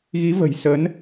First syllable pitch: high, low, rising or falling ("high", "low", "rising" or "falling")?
rising